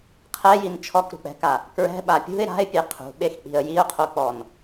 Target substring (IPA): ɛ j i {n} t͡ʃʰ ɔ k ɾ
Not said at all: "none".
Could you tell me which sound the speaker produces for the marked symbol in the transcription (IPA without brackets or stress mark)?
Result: n